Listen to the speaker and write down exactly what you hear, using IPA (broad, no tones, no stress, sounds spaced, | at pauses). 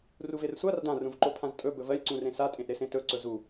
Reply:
r u v e r sʷ a r d ã r ũ v ǃ o pʰ ã z tʼ ɵ b ɵ v ɜ lʲ ǀ ũ r ẽ s a tʼ ẽ ʔ ɾ e s ẽ t ɵ ǀ ɵ z u